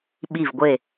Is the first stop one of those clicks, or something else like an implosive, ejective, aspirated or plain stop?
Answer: implosive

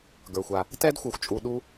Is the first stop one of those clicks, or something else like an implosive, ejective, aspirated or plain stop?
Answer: plain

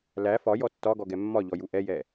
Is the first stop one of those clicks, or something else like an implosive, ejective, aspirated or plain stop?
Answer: plain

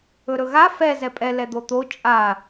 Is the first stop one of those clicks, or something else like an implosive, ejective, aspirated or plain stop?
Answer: ejective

